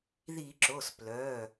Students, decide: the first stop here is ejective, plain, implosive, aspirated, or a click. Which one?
click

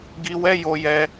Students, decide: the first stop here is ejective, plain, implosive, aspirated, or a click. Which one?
plain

